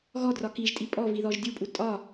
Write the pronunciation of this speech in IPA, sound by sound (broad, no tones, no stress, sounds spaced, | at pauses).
ɣ ɔ d r ɒ k i ʒ tʼ i pʼ ɔ v i ð ɔ ʒ dʲ u pʼ u tʼ ɒ